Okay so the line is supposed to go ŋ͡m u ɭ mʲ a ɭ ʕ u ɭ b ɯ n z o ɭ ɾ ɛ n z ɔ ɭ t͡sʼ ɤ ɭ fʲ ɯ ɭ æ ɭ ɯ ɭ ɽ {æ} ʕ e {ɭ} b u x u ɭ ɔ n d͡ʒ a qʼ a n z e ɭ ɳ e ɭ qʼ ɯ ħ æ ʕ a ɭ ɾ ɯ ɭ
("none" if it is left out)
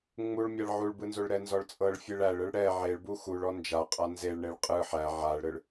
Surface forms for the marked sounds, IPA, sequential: ɛ, ɭ

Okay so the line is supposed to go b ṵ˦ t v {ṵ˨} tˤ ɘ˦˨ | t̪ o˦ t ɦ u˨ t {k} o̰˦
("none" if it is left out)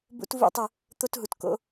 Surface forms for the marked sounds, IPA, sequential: ṵ˦, k

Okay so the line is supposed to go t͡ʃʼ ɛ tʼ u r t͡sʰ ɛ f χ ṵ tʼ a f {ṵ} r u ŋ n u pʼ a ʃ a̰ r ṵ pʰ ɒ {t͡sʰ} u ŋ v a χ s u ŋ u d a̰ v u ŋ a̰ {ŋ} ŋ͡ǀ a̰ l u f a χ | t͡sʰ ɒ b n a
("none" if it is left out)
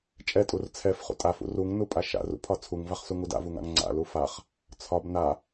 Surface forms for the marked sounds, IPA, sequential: ṵ, t͡sʰ, ŋ

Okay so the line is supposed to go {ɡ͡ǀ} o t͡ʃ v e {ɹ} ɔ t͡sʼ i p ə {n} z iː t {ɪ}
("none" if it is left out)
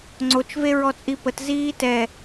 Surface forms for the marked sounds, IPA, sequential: ŋ͡ǀ, ɹ, t, ɛ

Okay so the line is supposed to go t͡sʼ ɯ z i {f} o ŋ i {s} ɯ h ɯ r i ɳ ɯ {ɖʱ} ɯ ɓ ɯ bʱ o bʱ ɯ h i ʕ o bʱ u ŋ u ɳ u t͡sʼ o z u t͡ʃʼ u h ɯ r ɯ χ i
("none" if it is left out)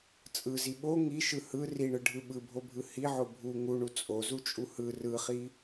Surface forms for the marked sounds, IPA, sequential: ɓ, ʃ, ɖʱ

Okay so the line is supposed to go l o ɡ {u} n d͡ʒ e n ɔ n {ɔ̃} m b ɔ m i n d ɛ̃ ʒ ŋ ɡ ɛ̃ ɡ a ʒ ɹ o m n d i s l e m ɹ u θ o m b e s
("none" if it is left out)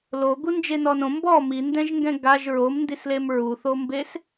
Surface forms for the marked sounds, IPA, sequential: u, õ

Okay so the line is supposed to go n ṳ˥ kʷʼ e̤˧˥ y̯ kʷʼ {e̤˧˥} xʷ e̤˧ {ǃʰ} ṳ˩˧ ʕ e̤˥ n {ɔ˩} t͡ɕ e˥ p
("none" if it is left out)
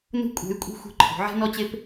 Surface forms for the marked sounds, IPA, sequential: e̤˥, ǃʰ, ɔ˥

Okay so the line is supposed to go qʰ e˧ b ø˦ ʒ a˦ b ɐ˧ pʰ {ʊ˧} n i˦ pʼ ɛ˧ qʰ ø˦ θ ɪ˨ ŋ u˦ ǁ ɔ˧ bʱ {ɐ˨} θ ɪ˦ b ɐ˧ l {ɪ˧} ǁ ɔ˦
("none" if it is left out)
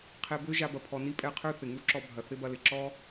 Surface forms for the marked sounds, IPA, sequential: ɔ˧, ɐ˨, ɪ˨

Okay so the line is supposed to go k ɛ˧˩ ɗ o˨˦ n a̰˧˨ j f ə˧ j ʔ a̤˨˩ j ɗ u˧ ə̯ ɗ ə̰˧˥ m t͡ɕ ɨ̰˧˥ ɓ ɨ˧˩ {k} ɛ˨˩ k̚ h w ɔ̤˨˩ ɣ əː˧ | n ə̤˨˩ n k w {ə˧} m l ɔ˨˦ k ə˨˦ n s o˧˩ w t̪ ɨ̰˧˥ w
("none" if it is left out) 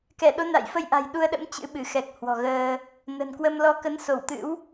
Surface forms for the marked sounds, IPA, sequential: x, ə˧

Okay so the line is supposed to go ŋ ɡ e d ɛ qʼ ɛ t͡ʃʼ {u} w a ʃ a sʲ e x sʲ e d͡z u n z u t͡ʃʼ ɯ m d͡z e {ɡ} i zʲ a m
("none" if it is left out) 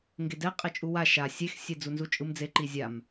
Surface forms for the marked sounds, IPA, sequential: u, ǃ

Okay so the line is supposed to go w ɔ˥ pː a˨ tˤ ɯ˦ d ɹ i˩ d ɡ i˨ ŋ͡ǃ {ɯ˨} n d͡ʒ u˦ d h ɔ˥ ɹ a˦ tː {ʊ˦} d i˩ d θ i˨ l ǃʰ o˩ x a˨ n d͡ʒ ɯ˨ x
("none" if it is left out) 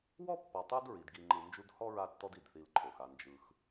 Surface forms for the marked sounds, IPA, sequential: ɯ˨, ɔ˦

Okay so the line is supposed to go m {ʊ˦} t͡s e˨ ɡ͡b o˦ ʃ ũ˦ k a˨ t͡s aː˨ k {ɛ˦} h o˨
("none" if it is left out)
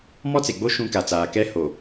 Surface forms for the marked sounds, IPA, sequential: ɔ˦, ɛ˦

